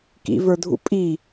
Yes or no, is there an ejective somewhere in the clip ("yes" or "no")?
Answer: yes